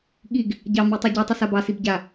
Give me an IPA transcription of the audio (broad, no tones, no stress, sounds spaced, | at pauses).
ɠ i ɡ | ɟ ɑ m i tˤ i ɟ ɔ tˤ i s a b ɑ s i b ɟ a